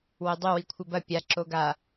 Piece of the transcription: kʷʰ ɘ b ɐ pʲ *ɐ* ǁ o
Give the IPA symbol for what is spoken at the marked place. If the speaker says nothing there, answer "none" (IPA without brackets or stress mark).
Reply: a